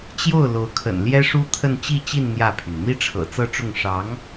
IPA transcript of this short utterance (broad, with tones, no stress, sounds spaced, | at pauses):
t͡ɕ j o˥˩ ʊ̯ l o˧˥ ʊ̯ kʰ ə̰˨˩ n l j ɛ˥ ʂ u˥ t̪ʰ ə˥˧ n t͡ɕ i˥˧ t͡ɕ i˥˧ n n̪ j ä˥˩ pʰ y˩ n n̪ i˥ ʈ͡ʂʰ ɤ̰˨˩ t͡s ɤ˥˧ ʈ͡ʂ ʊ˥˩ ŋ ʂ ɑ˧˥ ŋ